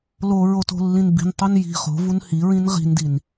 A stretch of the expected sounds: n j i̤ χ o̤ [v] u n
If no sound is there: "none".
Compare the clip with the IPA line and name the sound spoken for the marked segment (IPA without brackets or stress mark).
v